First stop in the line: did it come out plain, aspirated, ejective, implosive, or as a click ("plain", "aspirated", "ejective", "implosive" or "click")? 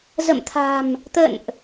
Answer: aspirated